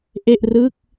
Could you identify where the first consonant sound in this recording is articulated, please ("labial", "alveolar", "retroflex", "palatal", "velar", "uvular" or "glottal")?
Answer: glottal